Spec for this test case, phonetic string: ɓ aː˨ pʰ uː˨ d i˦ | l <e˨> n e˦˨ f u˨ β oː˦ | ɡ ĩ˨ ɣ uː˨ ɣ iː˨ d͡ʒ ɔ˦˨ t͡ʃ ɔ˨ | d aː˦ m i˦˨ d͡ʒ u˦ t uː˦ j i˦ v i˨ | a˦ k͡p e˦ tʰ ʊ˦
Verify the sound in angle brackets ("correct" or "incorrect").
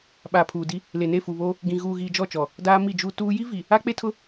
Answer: correct